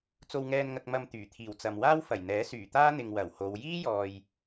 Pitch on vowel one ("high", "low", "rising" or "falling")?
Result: low